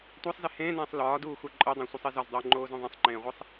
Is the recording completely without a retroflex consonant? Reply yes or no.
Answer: yes